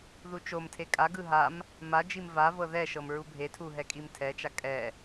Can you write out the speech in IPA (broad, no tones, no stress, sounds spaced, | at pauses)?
ð u t͡ʃ o m tʰ e kʼ a ɡ ɯ ɦ a m | m a d͡ʒ i m v a v ɤ ð ɛ ʃ ɤ m ɹ u bʱ e tʰ u ɦ ɛ kʼ i m tʰ ɛ t͡ʃ a kʼ ɛ